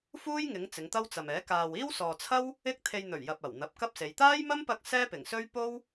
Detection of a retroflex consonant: absent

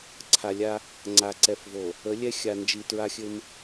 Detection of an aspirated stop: present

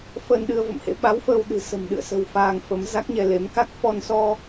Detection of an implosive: present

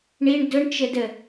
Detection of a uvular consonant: absent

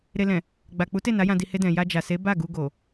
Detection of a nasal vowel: present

